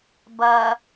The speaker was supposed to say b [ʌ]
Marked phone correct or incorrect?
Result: correct